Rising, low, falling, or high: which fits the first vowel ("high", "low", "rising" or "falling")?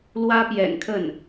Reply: high